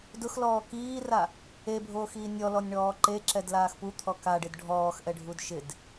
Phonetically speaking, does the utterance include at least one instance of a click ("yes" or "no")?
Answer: yes